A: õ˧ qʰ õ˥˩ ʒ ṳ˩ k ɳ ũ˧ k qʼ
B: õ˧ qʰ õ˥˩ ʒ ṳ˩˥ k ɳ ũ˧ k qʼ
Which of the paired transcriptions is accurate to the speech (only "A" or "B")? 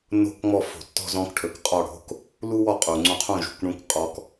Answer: A